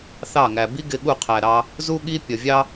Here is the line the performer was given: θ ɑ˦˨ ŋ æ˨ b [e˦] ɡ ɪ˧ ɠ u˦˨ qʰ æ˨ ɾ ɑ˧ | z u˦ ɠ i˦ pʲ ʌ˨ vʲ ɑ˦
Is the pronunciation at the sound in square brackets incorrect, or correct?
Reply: incorrect